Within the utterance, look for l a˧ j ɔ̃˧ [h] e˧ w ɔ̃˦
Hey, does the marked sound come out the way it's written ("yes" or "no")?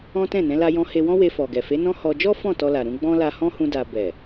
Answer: yes